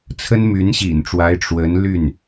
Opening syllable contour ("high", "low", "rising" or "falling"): high